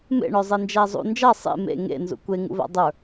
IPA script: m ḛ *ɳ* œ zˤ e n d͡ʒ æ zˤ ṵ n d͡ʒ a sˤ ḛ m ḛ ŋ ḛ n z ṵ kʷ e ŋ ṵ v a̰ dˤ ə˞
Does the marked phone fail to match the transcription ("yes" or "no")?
no